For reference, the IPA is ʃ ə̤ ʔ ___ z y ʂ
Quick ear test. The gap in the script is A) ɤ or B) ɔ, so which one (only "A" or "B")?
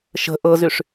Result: A